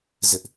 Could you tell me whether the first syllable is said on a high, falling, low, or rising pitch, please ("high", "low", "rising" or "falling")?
high